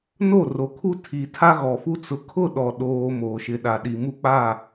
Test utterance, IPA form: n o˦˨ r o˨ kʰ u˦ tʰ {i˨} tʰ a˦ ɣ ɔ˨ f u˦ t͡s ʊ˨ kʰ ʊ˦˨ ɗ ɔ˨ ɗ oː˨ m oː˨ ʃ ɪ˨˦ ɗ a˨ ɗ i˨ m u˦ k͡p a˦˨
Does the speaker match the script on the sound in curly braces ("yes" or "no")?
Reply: yes